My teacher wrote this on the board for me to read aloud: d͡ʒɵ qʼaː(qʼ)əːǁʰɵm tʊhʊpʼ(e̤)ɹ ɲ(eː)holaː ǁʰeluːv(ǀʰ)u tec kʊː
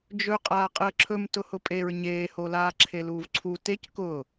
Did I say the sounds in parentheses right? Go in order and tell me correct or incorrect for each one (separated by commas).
correct, incorrect, correct, correct